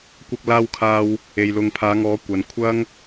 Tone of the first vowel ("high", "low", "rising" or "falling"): high